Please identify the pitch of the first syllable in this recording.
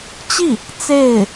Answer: falling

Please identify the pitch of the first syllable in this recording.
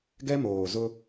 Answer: high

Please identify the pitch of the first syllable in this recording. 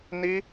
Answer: high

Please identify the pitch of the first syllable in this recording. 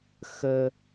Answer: high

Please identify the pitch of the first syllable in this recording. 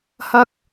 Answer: high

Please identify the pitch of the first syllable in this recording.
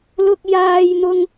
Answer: low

